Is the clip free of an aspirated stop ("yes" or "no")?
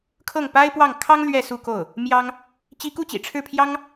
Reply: no